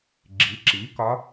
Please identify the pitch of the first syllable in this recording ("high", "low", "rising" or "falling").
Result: rising